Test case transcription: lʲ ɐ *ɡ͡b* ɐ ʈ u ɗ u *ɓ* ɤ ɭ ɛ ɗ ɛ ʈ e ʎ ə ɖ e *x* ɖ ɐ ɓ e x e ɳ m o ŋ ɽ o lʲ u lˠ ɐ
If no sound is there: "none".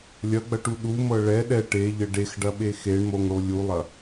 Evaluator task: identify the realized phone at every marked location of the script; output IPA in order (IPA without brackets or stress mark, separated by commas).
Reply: ɡ͡b, m, x